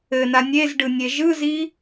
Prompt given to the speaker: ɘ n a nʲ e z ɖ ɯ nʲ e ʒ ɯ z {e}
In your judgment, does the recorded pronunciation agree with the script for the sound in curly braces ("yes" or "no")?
no